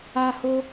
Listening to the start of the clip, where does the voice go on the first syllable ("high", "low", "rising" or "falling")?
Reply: high